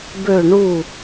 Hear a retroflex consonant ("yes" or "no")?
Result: yes